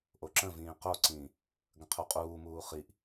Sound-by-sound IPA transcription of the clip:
ʔ o ǁ ə̃ v ĩː q o ǀ ĩː | ɡ ə̃ qʰ u qʼ uː m uː χ i ʔ

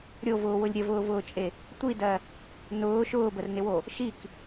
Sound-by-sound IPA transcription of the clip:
ɾʲ o v ʊː w ʊ lʲ ɾʲ ə v ʊː v ʊː t͡ʃʼ e | tʷ i d ɜ | n ʊː ʃ ʊː b ə r n ɪ w o | ʃ i k

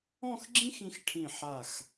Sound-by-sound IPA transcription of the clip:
ɔ̃˥˧ x ɡ͡ǁ ĩ˥ x ĩ˧ x ʈʰ ĩ˧˩ ħ a˧˩ x

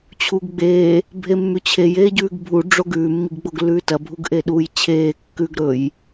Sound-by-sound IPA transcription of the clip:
t͡ɕʰ uː ɡ ɡ͡b eː | bʱ e mː ʉ t͡ɕʰ e j eː ɟ ʉː ɡ bʱ u ɖ͡ʐ o ɡ ʉː mː i ɡ ɡ͡b o ɡ lː ʉː t ɐ bʱ u ɡ ʔ e ɗ uː j t͡ɕʰ eː kː ʉ ɡ ɾ ɵ j

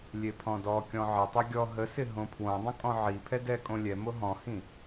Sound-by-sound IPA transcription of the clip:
lʲ e pʰ ɔ̃ d ɔ kʲ ɔ̃ ʕ ɪ tˤ ɛ ɡʲ ɔ ɦ ə s ɪ ɦ õ pʰ w õ dˤ ə̃ kʼ ɔ̃ ʕ i pʰ ɛ d ɛ kʼ õ lʲ ɛ m o ɦ ɔ̃ h ĩ

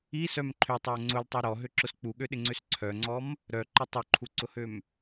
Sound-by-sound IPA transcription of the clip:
i s œ m ǃʰ ø tˤ œ o̯ ŋ͡ǀ ʊ l tˤ œ ɾ ɔ ɦ ø ǁ ʊ s k͡p u ɠ ø ɗ ɪ ŋ͡ǀ ø s ǀʰ œ ŋ͡ǀ ɔ m | ɾ œ ǃ ɪ tˤ ʊ ǃʰ u ǀ ʊ h ø m

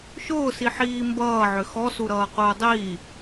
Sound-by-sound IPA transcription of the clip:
ʃ ʊː s i ħ iː m b ʌː ʕ ʏ x ɔ s u ɾ ʌː q ʊː dˤ iː

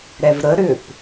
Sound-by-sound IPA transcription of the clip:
ɾ ɛ v ɾ ə ɾ ʏ p

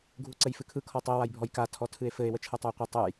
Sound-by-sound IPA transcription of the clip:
ɡʱ u ǀ ɘ j f ɨ kʰ ɯ kʰ ɔ tˤ e w a j bʱ ɔ j k a tʰ ɔ tʰ ɨ e̯ f ɘ e̯ w ə t͡ʃʰ ɯ tˤ ə e̯ qʷ ɨ tˤ ɯ j

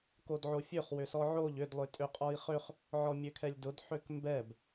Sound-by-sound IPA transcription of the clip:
k o d ʕ o fʲ ø χ w ʏ s ɔ ʕ o ʎ ʏ d lˠ ʏ tʼ ø qʼ ɔ i̯ χ ø χ | ʕ ɔ mʲ ø kʰ ɛ lʲ d ʊ d ħ ø k m b ɛ b

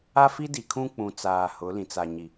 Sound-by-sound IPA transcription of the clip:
a˦ f i˦ d i˨ kʰ ũ˦ k͡p ũ˨ t͡s aː˨ h ʊ˨˦ l ĩ˨ t͡s a˨ ɲ i˨

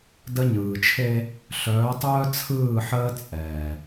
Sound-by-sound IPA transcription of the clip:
d ə˦ ɲ ɯː˨ t͡ʃʰ e˦ | ɬ œː˨˦ tˤ œː˦ t͡sʰ ɯː˦˨ ħ əː˦ t͡sʼ ɛː˨

